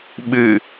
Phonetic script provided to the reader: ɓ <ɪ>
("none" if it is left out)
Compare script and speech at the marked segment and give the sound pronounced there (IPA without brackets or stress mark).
ɨ